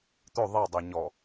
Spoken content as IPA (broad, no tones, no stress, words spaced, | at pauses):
t̪ɵ ðˤedˤe ɲɔ